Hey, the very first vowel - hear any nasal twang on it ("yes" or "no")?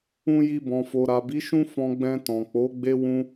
yes